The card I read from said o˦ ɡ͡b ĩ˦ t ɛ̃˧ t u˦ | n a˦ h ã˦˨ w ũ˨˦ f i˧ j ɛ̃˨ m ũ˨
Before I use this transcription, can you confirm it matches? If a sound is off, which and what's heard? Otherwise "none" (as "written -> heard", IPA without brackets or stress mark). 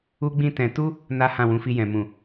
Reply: o˦ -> u˦